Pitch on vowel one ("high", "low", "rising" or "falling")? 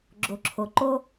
low